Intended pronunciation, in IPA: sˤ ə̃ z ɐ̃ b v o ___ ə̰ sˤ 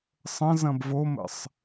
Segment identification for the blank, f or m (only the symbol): m